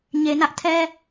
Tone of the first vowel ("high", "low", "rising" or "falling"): low